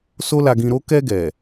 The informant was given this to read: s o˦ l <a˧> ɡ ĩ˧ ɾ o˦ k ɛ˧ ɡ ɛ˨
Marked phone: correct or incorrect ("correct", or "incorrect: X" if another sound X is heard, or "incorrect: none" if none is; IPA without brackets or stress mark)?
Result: correct